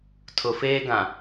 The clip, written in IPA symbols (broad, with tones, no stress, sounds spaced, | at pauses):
tʰ ʊ˨ f eː˦ ɡ ã˨